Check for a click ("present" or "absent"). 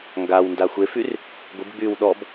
absent